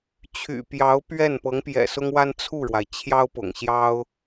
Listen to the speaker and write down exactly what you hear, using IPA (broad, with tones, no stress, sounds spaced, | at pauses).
t͡ɕʰ y̰˨˩ p j ɑ˧˥ ʊ̯ p ɥ ɛ˥˩ n p ɤ˧˥ ŋ p j ɛ̰˨˩ s ʊ˥ ŋ w a˥ n t͡sʰ u˥˩ ɻ w a˩ ɪ̯ t͡ɕʰ j ɑ˥ ʊ̯ p ʊ̰˨˩ ŋ ɕ j ɑ˥ ʊ̯